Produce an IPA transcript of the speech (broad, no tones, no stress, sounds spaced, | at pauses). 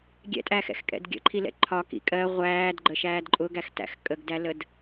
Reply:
ɡʲ ɛ̰ tʼ æ x ɛ̰ x kʼ ɛ̰ d ɡʲ ə̰ ǃʰ i l ɛ̰ ǃʰ ɒ k ḭ kʼ ɜ ʁʷ æː d ɡ͡ǃ ə ʃ æː d ǃʼ ʊ ɡ æ x t æ̰ x kʼ ə ɡ d æ l ə d